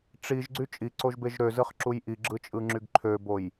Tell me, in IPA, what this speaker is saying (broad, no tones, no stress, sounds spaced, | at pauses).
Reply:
ʈ͡ʂ i ʒ ɡ͡ǀ y t͡ʃʼ i ǀ o ʒ b e ʒ ɾ ø z ɯ χ ǁ u j ʔ i ɡ͡ǁ ɯ t͡ʃʼ ɯ ŋ͡ǁ y ɡ ǃʰ ø b o j